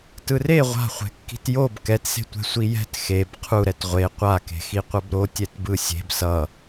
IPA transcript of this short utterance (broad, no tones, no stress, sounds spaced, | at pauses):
t ɯ r e ʁʷ a̤ χʷ ɛ̤ kː i̤ t j o b k ɛ t s e̤ tʷ ɛ̤ sʷ i j ɛ̤ t x e b qʰ u ɾ ɛ t ʁʷ e qʷ a k e̤ x i qʷ ʌ b ɾ o tʲ ɛ t b ɯ sʲ e̤ b s ʌ